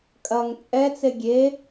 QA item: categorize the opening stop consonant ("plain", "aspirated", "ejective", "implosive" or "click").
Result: ejective